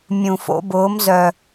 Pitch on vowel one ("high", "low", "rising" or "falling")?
low